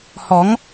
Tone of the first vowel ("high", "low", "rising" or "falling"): rising